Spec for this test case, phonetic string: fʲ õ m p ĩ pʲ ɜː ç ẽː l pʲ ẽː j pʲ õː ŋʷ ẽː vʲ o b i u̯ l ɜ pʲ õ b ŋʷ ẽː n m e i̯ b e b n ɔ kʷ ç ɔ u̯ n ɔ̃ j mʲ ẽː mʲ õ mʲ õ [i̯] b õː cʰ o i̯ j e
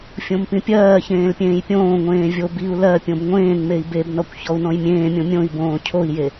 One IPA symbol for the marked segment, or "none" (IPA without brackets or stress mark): i̯